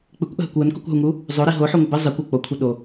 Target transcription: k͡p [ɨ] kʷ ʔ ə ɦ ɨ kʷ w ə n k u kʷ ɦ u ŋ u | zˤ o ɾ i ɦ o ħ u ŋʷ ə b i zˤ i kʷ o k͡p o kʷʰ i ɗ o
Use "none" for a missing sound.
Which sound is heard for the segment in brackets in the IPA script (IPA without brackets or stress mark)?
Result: ɨ